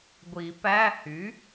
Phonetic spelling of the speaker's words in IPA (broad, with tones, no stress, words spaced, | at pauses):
ɡʷi˨˩˦pæ˧˥˧ hy˩˥